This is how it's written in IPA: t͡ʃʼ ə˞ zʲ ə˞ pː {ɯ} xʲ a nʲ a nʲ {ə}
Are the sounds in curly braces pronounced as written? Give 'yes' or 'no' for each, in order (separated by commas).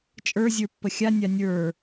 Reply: no, no